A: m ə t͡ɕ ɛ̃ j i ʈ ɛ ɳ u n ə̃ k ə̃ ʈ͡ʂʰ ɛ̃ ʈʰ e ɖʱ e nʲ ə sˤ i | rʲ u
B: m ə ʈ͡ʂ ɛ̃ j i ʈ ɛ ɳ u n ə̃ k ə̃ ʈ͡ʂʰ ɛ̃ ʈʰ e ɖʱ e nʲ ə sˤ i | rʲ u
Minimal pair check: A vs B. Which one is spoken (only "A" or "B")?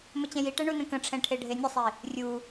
A